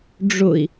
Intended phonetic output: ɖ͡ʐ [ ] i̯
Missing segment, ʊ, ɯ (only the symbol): ʊ